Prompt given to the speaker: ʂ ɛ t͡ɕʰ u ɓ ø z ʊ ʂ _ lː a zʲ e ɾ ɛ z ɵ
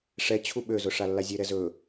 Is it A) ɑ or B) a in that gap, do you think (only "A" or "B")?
B